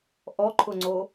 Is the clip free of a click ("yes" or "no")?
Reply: no